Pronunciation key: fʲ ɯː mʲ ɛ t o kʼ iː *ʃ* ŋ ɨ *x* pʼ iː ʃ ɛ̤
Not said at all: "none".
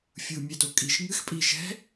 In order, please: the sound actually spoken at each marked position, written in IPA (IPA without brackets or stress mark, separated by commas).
ʃ, x